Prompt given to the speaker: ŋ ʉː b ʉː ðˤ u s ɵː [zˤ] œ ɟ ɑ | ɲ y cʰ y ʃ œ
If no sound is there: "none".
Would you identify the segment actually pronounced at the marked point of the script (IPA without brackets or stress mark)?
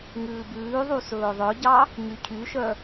ðˤ